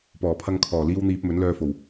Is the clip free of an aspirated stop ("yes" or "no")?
no